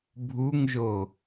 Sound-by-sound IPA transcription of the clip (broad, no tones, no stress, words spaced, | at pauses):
bʱuŋʒo